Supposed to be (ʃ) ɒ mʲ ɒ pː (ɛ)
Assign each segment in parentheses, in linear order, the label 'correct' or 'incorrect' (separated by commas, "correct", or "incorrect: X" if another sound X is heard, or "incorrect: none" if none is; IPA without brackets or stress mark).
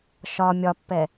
correct, correct